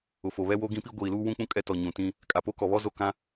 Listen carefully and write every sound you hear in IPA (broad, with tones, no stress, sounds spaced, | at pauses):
ʊ˨ f o˨ β ɛ˦ w o˦ ɡ ĩ˦ p i˦ ɡʷ iː˨ l uː˦ w ũ˦ k͡p ũ˦ kʼ ɛ˦ t ɔ˨ ɲ ũ˨ t ĩ˦ | kʼ a˨ p o˦ k ɔ˨ β ɔ˦ z o˦˨ k ã˦